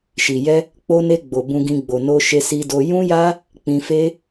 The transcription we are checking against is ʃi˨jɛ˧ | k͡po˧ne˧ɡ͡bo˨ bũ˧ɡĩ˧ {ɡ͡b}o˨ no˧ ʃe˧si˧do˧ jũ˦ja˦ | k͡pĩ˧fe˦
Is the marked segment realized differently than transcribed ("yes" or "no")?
no